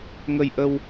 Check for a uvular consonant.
absent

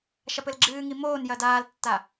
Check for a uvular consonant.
absent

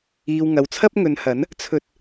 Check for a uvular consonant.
absent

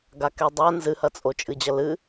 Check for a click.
absent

